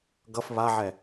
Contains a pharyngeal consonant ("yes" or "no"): yes